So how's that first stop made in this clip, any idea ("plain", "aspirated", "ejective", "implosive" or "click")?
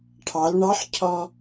aspirated